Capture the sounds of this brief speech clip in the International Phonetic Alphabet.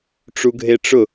ʈ͡ʂ u ɡʱ e ʈ͡ʂ ʊ

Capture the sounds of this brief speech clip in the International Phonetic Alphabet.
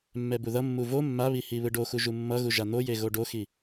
mː ɛ b u ð ʌ mː u v o mː a β i h i β ɯ ɖ o x u ʒ u mː ʌ ɣ u ʒ a n̪ o j e ɣ o ɖ o x i

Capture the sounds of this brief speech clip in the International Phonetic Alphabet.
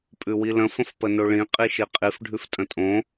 pʼ ʉ w i l ə̃ f ə̃ f p ə n o ɭ ĩ qʼ i ʃ i qʼ i f ɖʱ ʉ f tʼ ə̃ tʼ õ

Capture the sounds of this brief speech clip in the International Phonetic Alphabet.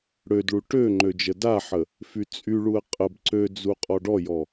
ɽ ø d ɭ u ʈ ø ŋ͡ǃ ø d͡ʒ ə d a ħ ə | f y t͡sʼ y ɭ u ə̯ qʼ ə b ǀ ø d͡z u qʼ ɔ ɖ ɔ j ɔ

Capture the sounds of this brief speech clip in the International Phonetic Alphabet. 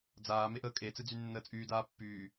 d͡z aː m e ʔ əː kʼ e t͡s ɨ d͡z y nː əː t͡sʼ yː d aː pː yː

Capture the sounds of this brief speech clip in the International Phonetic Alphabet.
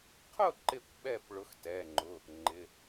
qʰ ʊ˥˩ ǃ ɪ˧˩ kʷ ɓ ɛ˧˩ p ɭ ʊ˨˦ x t ɛ˩˧˩ ŋ͡ǃ ʊ˩˧˩ | ŋ͡ǃ ɪ˩˧˩

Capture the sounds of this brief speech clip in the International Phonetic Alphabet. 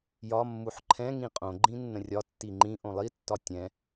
j ɒ mː u ħ ǃʰ ɛ̃ ŋ ĩ qʼ õ ɡ͡ǃ ĩ nː ə̃ rʲ ɒ tː i ŋ͡ǃ ĩ ʔ õ lˠ i tː ɒ tʲ ɛ̃

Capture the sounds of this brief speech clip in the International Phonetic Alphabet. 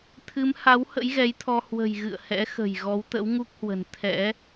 t̪ʰ ɨ˨˦ m h a˨˦ w h ə̰˧˥ j ɣ ɛ˨˦ j t̪ʰ ɔ˧ h w ə̤˨˩ j ɣ ɨ̰˧˨ ə̯ h ɛ̰˧˥ x ə̤˨˩ j ɣ ɔ˨˦ w t̪ ə̰˧˥ w ŋ u˦˥ k̚ h w ə̤˨˩ n t̪ʰ ɛ̰˧˥

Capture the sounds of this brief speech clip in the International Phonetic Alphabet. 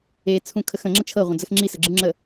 e t͡sʰ ũ kʰ ə x ə̃ ŋ͡ǁ ə t͡ʃʰ ɤ ʁʷ ə̃ d͡z ə x ŋ͡ǁ i s ə ɡ͡ǁ ɯ ŋ͡ǁ ə

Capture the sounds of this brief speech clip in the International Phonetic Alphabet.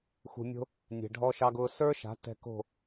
x ṳ˨ mʲ o̤˧ | nʲ ɛ̤˨ ɖʱ ɔ˧ ʃ ɑ˧ ɡ ʊː˧ s ə˞˦ ʃ a̤˨˦ t ɛ̤˧ k o̤˦˨

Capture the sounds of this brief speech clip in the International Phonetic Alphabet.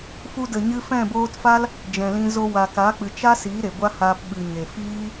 f u˧ d ə˨ ɲ ɨ˧ f ɛ̃˦˨ b oː˧ t f a˦ l | d͡ʒ ɛ̃˨ l ĩ˧ z o˧ w a˨ k a˨˦ k͡p ɨ˨ t͡ʃ a˦ s i˨˦ ɾ e˨ ɡʷ a˦ h aː˧ p ɓ ɨ˨ ɲ e˨ f iː˦

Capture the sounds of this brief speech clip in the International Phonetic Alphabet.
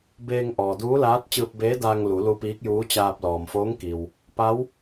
b eː˧ ŋ ʔ ɔː˩ d uː˧˥ l aː˧˥ t̚ t͡ɕ ɯː˧ p̚ b eː˧˥ d aː˧ ŋ l u˩˧ l u˧ p iː˧˥ k̚ j uː˧˥ t͡ɕ aː˧ p̚ l ɔː˩ m f oː˧˥ ŋ k i˩ w | p a˧˥ w

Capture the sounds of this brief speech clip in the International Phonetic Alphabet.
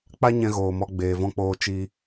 k͡p a˦ ɲ ɛ̃˧ ɣ oː˨ m ɔ˧ ɡ͡b eː˨ v ɔ̃˧ k͡p oː˧ t͡ʃ i˦

